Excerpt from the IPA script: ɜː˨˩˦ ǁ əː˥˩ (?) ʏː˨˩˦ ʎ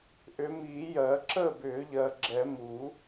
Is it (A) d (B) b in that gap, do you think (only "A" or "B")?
B